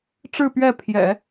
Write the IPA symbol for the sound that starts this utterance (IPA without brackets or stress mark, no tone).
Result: ʈ͡ʂ